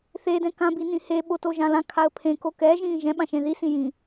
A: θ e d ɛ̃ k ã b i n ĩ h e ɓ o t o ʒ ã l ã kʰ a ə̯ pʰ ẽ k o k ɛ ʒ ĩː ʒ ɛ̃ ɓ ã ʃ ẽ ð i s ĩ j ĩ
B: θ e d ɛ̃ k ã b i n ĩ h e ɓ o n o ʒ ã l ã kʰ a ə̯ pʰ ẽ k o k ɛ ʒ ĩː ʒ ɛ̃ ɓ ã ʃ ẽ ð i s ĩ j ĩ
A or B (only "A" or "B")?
A